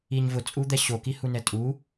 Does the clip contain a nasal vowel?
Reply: no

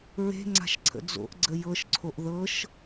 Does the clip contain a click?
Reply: yes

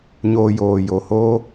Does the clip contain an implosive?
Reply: no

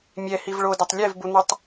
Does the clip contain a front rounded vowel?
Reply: no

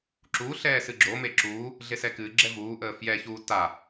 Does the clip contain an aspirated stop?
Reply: no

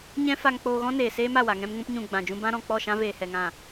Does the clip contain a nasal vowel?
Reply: yes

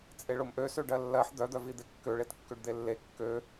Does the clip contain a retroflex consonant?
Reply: yes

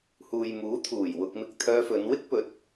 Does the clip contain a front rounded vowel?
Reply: yes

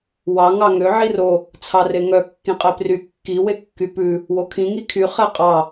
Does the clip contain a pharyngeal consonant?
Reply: yes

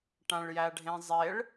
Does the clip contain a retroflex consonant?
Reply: yes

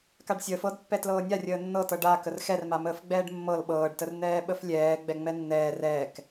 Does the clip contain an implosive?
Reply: yes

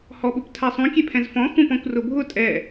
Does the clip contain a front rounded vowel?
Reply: no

